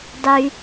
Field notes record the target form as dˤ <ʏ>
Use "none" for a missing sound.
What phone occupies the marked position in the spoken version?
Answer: y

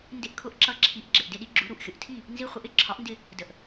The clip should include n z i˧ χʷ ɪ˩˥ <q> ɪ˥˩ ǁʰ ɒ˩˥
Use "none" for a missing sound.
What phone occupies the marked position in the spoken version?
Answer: ʔ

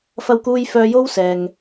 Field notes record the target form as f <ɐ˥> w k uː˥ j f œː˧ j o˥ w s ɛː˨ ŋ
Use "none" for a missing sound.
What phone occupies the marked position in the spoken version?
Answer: ɐ˥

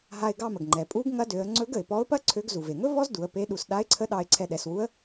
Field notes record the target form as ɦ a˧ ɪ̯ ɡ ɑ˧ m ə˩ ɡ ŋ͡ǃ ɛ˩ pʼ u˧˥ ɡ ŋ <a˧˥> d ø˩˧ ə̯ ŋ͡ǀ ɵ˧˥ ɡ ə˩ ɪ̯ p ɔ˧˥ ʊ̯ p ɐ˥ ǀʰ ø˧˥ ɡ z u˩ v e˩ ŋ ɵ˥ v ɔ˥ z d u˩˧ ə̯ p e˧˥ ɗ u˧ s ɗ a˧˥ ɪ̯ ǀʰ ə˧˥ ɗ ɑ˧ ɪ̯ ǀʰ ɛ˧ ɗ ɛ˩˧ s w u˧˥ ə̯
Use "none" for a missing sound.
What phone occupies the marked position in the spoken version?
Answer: ɐ˧˥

